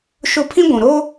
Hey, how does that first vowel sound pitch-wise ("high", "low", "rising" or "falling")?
high